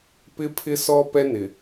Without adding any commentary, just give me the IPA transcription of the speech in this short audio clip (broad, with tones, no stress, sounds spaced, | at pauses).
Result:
p ɪ˦ pʰ ɪ˦ s ɔ˦ p ɛ˦ n ɪ˨